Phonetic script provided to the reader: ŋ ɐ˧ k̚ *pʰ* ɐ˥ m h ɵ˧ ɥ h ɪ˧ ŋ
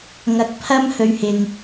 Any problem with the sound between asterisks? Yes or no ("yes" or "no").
no